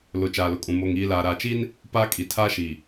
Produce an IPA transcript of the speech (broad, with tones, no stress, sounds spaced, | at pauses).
l ʊ˨ t͡ʃ aː˨ l ʊ˨ kʼ ũ˨ m o˨ ŋ iː˨ l aː˨ ɾ aː˨ t͡ʃ i˦ n | p aː˦ kʼ i˨ tʰ aː˦ ʃ iː˨